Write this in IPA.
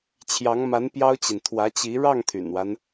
t͡ɕʰ j ɑ˧˥ ŋ m a˧˥ n p j ɑ˥ ʊ̯ t͡ɕ i˨ n t̪ʰ w ä˧˥ t͡ɕ i˧˥ ɻ ɑ˥˩ ŋ t̪ʰ y̰˨˩ n w a˦ n

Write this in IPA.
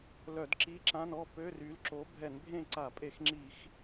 l œ˧˩˧ d ǁ i˧˥˧ ǁ ã˧˥˧ n ɔ˥˨ p ø˧˥˧ r y˨˥ l ǁ o˨˥ bʱ ɛ˧˩˧ n bʱ ẽ˥˨ ǀ a˧˩˧ pʼ e˧˩˧ x ŋ͡ǁ i˧˩˧ x

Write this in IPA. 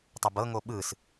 tˤ ɤ b ɤ ŋ o ɓ ɯ s

